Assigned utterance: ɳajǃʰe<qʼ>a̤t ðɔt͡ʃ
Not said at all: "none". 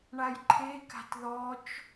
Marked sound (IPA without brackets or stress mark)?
k